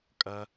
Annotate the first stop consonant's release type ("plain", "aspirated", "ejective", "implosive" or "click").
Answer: ejective